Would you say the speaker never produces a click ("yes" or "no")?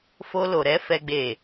yes